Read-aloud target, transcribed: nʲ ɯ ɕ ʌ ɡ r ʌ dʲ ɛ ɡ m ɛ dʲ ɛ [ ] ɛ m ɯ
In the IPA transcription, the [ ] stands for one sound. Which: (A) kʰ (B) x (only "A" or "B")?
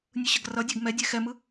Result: B